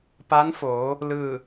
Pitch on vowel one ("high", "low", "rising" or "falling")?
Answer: rising